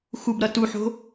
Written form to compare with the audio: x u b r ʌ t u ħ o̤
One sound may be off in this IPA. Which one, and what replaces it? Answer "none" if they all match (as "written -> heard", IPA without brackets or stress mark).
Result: r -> ɾ